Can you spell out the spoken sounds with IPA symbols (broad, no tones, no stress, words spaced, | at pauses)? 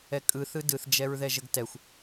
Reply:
ɛkʼɯ θɯdɯθ d͡ʒɛɹðɛʒəɡtɛxʷ